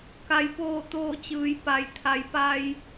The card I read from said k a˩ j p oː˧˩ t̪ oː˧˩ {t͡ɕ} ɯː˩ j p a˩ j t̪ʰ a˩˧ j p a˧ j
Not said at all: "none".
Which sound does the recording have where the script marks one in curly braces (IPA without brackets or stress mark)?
t͡ɕ